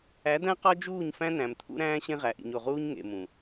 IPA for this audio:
æ˨˦d̪æ̃˦ qɒ˦d͡ʒuː˦˨ɲfæ̃˦ næ̃˨mt̪ʰṵ˦ɾæ̃ː˦ ɕẽ˦ʁæ˨ʔḭ˨ɲ o˨ʁuː˦ɲ ŋḛ˨mũ˨

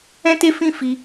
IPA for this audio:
ɛ̃˦te˦fĩ˦fi˧

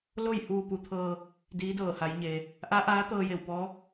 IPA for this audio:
lo˥˨j huː˧pu˩˧t̪ʰɤː˧ | diː˧˥dɤː˧˩ha˩˧jɲeː˩ | ʔa˧˥ ʔaː˧˥t̪ɤː˧je˧˩w pɔː˧˥

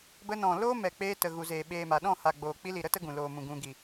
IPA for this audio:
bə˧nɔ̃˨ loː˦mɛ˨k͡peː˧ tə˨ɣu˨zeː˨ ɓeː˨ma˨ɗɔ̃˦˨ ha˨ɡ͡boː˨k͡pi˧li˨ ɾə˦ tə˦ɡũ˨loː˨mũ˨ ɡũ˨ɡi˨

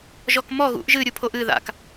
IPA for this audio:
ʒɔkmɔ ɣṵʔ ʒɨ ɾʲupʰoʔɨ ða̰k

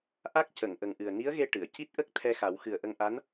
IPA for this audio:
ʔa˦˥k̚cə˨˩˨ŋ ʔə˨˩ŋʔɨ˨˩ə̯ni˧˥ə̯ɣe˧ ʈɨ˨˩˨ə̯ ci˦˥t̚ʔə˦˥k̚ t̪ʰɛ˧xa˨˩˦w xɨ˨˩ə̯ʔə˧ŋʔa˧˥n

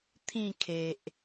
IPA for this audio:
t̪ʰĩ˥˧ kʰe˨ʔ

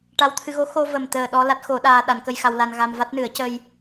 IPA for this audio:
ʈa˧wt̪ʰɨ˧ɣo˧˥ xo˧və˨˩m t̪əː˨˩ ɗɔ˧ la˦˥t̚xo˨˩˦ ɗaː˧ɗa˨˩˦nkə˧j xa˧wla˧nɣa˧m va˦˥t̚nɨ˨˩˦ə̯cə˧j

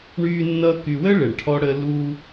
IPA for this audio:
ɳyː˦ nːʌː˦ky˧ wəː˦ ɭe˨ɳʈʰɔ˦ɽəː˦ luː˦

